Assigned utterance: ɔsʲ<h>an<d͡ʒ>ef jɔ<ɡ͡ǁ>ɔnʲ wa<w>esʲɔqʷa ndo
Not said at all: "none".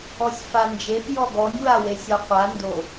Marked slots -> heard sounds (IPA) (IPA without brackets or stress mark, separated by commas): f, d͡ʒ, ɡ, w